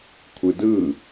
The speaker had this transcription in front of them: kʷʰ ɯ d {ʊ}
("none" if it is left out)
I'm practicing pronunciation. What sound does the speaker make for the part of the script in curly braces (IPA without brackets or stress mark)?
ɯ